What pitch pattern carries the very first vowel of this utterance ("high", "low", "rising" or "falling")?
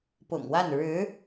low